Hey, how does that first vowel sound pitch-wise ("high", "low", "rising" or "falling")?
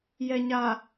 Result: low